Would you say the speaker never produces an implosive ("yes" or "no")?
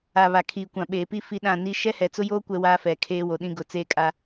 no